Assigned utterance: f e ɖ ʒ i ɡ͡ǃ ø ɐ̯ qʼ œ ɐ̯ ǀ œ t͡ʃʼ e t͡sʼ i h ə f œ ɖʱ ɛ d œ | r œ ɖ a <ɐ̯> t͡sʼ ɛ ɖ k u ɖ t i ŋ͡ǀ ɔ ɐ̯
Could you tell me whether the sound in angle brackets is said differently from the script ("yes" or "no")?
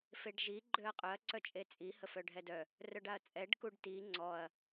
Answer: no